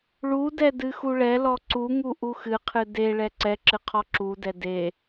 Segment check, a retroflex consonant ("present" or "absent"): present